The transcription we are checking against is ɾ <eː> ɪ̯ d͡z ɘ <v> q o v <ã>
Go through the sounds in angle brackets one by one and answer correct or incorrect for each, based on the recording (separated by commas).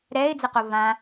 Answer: incorrect, incorrect, correct